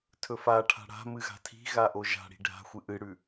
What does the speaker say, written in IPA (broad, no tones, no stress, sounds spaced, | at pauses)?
tʰ ɵ f a ʈʰ a̤ ɽ a̤ m ɨ ɣ a̤ tʰ i̤ ɣ a ʔ o ʒ a̤ ɽ i̤ ɖʱ a̤ xʷ ɨ ʔ ɨ ɽ ʉ